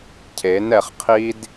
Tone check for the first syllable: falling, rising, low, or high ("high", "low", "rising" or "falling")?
rising